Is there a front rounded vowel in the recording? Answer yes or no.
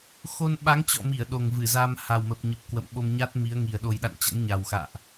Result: no